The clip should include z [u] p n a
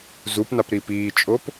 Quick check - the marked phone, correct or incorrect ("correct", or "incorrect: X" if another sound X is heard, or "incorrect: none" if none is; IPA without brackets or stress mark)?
correct